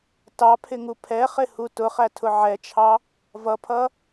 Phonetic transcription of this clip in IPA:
tɑpʰɪŋu pʰɛχɪhu tʊχætʰʊ ʕɛt͡ʃʰɑ | vʌpʰʌ

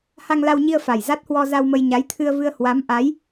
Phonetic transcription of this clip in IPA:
ha˧ŋla˧wɲi˧ə̯ fa˨˩jza˦˥t̚hwɔ˧ za˧wmə˧j ɲa˨˦jt̪ʰɨ˧ə̯vɨ˧ə̯ hwa˨˦mʔa˨˦j

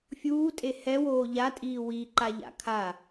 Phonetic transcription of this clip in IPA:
fʲuːtʼe hɛwoː ʎatʼiː wi ǃaʎa̰kʰa

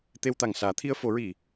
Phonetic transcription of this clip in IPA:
t̪e˧wt̪a˨˩ŋsaː˨˩˦ t̪ʰi˧ə̯fo˨˩˦ɹi˨˩˨

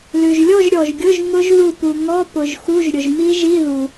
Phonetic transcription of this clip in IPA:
lʉ˩ʒlʲɔ˥˧ʒɾʲɔ˩ʒɡʲʊ˧˥˧ʒ ŋʊ˦˥ʒðu˧˩pu˩ ŋɔ˧˥˧ pʊ˩ʒxu˧˥˧ʒ ɾʲʊ˩ʒmi˦˥ʒi˧˥˧ ðu˩

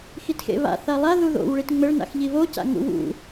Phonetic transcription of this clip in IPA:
xitxḛβa̰ θalˠa ðuðo̰w ɭitŋ͡mɘɭ na̰xʎiβo ca̰ŋṵwṵ

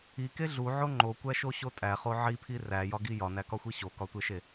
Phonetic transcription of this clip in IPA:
ike ɮuʕo ŋ͡ǃokʷæʃoɕo tʼæχo ʕipʰi ræjɒɡi jɒnækɒxʷi ɕokɒtʷeʃe

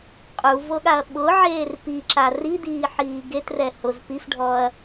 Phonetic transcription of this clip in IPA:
qʼuvoɠaɐ̯ ɓʊʕeːr piǁa ridiːħiː ɡetrɛ hʊz pifɖʱɔɐ̯

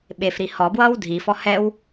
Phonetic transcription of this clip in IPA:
ɓefɾi hɔbwʌːw dʱifɔ hɛw

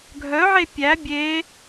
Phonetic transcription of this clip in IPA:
ɡʱœʕe pʲæ bʲe

